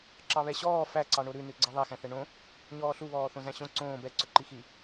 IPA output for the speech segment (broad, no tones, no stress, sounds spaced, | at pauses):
ǁ ɑ β ɛ ɕ ɔː f æ ǀ ɑ ɳ o ɾ ʉ n ʉ ɡ͡ǀ ɑ ðˤ æ x æ̃ θ ɛ ɳ õ | ɲ ɔː ɬ u β ɔː θ õ z æ̃ ɕ õ ǀ õː b ɛ ǀ ɵ ǃ i x i